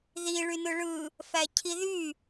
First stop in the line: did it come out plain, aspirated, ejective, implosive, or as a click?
aspirated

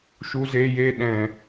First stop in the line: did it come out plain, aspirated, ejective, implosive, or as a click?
implosive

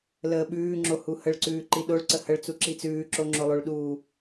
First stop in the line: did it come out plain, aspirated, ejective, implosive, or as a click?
implosive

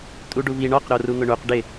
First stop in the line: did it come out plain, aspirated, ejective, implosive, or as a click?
ejective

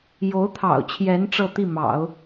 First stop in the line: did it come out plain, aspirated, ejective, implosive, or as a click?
aspirated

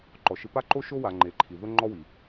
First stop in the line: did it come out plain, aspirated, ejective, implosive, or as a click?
click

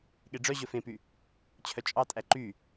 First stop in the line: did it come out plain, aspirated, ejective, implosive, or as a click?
implosive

